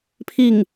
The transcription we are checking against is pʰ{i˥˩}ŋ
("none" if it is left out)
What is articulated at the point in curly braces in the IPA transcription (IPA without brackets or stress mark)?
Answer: i˥˩